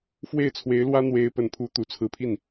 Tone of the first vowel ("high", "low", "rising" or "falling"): falling